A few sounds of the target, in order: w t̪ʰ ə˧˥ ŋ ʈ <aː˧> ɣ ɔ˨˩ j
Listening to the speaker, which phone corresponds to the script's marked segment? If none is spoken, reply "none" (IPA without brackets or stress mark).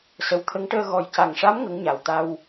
əː˧